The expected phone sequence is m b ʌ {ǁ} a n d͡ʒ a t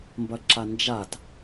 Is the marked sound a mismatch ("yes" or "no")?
no